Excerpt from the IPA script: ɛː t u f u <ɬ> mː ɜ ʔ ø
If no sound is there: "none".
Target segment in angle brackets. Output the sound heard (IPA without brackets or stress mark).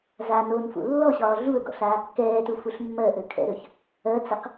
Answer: ɬ